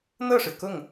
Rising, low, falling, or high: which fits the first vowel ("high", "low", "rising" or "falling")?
falling